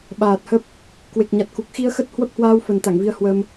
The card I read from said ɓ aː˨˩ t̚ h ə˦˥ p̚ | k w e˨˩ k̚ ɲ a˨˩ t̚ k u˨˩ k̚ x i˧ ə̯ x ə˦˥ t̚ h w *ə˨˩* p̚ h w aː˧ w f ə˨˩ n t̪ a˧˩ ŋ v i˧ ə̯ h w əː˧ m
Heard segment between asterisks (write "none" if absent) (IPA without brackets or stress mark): ə˦˥